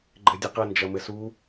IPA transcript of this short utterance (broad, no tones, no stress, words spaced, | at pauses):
ɡ͡ǃɘdʲɘqɐ nd͡ʒɐmɘsu